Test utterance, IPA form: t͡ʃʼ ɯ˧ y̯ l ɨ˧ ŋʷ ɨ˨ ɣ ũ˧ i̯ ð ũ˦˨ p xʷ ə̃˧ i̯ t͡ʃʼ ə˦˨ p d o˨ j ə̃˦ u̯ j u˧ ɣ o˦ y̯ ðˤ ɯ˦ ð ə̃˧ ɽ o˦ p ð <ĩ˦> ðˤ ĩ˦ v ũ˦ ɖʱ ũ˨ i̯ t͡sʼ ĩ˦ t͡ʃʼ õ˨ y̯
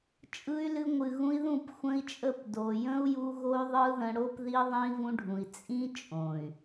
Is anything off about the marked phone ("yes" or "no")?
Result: yes